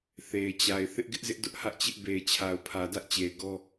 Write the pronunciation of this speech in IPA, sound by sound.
θ e˨ ɪ̯ t͡ɕ a˨ ɪ̯ θ ɪ˦ ʔ ɡ ɪ˦ ʔ z ɪ˦ ʔ d ʊ˦ ʔ h ä˦ ʔ t͡ɕ ɪ˦ ʔ b e˨ ɪ̯ t͡ɕʰ a˨ ʊ̯ pʰ ä˨ d ä˦ ʔ t͡ɕ e˨ ɪ̯ ɡ ɔ˦

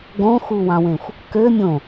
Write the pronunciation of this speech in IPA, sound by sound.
ɡ õ x u w ɑ̃ w ẽ xʷ | k ø mʲ õ

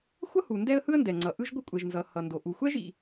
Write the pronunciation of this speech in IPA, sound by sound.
xʷ ʌ˥ h u˩ n d ɛ˥ ə̯ h ɯ˥ ə̯ n d ɛ˩ ŋ͡ǀ ʌ˩ ʔ ɯ˥ ʒ ɡʷ ɯ˥ kʷʼ ɛ˩ ʒ n z ʌ˩ h ʌ˩ n d o˩ ʔ u˩ xʷ ɛ˥ ʒ ḭ˩

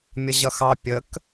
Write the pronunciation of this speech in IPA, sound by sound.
mʲ ʌ ʑ ʌ x ɑ pʲ ə k

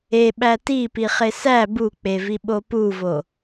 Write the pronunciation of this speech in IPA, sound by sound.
e ɓ æ t i p i χ e s æ b u k͡p e v i ɓ o p u v o

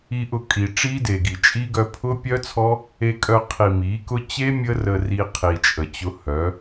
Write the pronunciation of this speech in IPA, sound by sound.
i˧ ʔ ʊ˧ kʼ i˨ ʈ͡ʂ i˦ d e˨ ɡ i˨ t͡ʃʼ i˦ ɡ œ˧ pʰ ʊ˦ pʲ œ˦ t͡sʰ ɔ˦ | e˧ kʼ œ˧ qʰ i˨ m i˨˦ k ʊ˦ t͡ɕ e˦ mʲ ə˦ r ə˧ r i˧ qʰ i˨ t͡ʃʼ ə˨ t͡ɕ ʊ˧ h œ˨˦

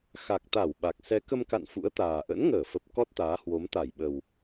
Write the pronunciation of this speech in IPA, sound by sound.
x a˨˩ k̚ t̪ a˧˩ w ɓ a˨˩ k̚ s ɛ˨˦ k ə˧ m k a̰˧˨ n f ṵ˧˥ ə̯ t̪ aː˨˩ ʔ ə̰˧˥ n ŋ əː˧˩ f ə˨˩ p̚ k ɔ˦˥ t̚ t̪ aː˨˦ h w o˨˦ m t̪ a˧˩ j ɓ ə˨˩ w

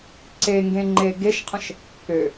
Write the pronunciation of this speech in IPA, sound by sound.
ǀ e ŋ ɡ ẽ ŋ͡ǃ e ɡ e ʃ qʰ ə̃ ʃ | k ø

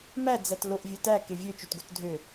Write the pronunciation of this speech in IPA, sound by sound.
m æ d͡z æ t l o ʔ vʲ ɵ t æ k e vʲ ø t͡ʃ o t ɡ o t dʱ ø

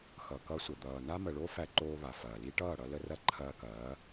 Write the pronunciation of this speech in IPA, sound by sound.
x ʌ˨ k ʌ˧ sʷ ə˨ d̪ ʌː˨ n a˦ m ə˨ ɭ o˦ f æ˧ ǃ oː˧ β a˨ f ɐː˨ l i˦ ʈ ʌː˦˨ ɽ ʌ˧ l ə˧ r ɐ˧ ǃʰ ɐː˧ k ɐː˨˦

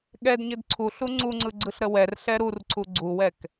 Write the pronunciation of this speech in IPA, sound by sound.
ɠ ɛ d ɲ ɘ d ǀʰ u ɬ u ŋ͡ǀ u ŋ͡ǀ ɯ ɡ͡ǀ ɯ ɬ ɾ ə w ɛ r ɬ ɛ ɾ u r ǀʰ u ɡ͡ǀ u w ɛ k

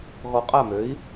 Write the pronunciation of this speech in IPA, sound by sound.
ɣ ɔ˧ qʼ a˥˩ m ø˩˥ i̯

